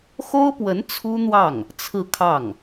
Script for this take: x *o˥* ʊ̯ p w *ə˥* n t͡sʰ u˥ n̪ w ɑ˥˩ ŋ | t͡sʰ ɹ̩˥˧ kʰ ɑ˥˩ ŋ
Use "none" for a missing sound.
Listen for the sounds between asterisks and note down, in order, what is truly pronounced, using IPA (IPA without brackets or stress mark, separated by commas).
o˥, ə˧˥